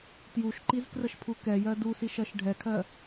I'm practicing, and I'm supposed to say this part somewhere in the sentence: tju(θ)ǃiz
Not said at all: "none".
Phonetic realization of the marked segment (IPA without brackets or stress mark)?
ʃ